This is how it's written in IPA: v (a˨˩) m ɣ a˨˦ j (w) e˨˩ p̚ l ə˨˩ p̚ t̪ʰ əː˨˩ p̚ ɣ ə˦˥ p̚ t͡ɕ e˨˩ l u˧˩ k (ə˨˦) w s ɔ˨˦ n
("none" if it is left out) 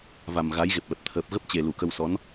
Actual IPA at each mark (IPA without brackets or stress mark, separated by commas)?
a˨˩, ɣ, ə˧